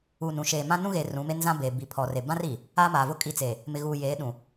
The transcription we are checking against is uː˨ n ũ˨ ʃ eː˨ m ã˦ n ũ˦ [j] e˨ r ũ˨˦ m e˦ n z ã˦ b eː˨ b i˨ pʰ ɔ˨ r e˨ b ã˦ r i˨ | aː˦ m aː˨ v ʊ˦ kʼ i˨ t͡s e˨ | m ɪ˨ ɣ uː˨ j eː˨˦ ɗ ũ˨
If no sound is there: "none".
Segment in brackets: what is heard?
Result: ɣ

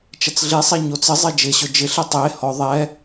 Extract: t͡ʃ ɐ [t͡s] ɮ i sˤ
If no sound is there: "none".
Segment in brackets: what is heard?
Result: t͡s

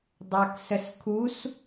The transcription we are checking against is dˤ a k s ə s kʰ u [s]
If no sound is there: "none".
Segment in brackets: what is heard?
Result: s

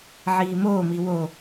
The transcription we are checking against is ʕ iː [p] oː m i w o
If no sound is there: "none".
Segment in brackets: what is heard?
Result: m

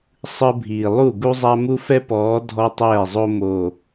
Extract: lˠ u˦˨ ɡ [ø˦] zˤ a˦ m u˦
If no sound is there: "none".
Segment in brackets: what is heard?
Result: u˦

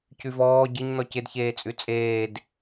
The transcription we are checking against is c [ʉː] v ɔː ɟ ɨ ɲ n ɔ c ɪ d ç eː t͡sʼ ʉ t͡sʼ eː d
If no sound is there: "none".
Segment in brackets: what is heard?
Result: ʉ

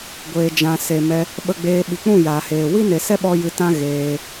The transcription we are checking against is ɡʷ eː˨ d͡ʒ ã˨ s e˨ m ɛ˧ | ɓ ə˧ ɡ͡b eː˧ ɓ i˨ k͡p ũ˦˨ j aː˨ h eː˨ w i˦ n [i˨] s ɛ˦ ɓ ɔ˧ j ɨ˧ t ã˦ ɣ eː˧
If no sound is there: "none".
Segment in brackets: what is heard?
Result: e˨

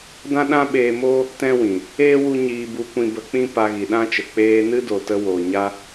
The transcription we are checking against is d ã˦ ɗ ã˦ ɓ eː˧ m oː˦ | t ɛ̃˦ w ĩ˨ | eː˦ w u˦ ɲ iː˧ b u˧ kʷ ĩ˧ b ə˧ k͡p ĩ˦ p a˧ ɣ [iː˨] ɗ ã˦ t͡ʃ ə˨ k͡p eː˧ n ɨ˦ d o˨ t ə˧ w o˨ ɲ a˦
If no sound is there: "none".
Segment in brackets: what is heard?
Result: i˨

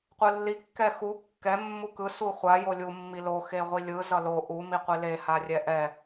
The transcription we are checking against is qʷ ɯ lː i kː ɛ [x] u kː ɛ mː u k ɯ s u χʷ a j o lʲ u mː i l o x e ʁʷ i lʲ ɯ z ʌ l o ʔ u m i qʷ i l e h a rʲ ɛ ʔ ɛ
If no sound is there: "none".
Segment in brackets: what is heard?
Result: x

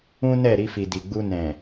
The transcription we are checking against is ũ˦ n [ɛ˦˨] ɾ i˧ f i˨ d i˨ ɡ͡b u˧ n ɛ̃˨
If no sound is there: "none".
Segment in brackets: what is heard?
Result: ɛ˦˨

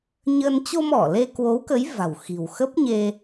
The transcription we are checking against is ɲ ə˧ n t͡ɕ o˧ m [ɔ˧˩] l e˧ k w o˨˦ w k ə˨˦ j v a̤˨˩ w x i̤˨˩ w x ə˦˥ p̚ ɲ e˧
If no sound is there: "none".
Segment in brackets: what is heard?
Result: ɔ˧˩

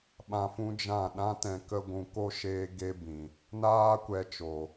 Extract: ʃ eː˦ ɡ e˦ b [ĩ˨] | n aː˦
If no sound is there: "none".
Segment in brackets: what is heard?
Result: ĩ˨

